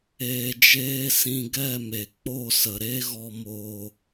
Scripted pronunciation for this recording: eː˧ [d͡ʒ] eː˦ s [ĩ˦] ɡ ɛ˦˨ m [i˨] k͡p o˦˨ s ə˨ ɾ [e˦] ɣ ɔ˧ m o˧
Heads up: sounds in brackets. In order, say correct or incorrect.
correct, incorrect, incorrect, correct

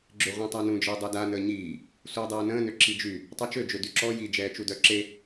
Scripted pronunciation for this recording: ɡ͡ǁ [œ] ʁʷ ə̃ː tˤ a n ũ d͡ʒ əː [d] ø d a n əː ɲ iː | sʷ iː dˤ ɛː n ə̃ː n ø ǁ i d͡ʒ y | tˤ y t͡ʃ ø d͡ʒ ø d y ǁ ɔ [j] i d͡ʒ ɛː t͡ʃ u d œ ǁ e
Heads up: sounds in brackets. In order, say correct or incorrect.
incorrect, incorrect, correct

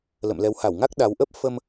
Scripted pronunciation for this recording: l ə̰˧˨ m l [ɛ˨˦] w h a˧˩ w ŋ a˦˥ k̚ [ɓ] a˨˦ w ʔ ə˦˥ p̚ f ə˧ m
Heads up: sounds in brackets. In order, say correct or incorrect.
correct, incorrect

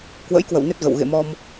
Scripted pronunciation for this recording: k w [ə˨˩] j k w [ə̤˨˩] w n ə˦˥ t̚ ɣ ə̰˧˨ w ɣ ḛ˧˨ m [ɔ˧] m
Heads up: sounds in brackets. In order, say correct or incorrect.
incorrect, incorrect, correct

